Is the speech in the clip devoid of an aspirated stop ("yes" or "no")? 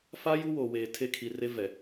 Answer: no